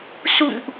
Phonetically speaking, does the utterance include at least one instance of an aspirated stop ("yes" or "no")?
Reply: no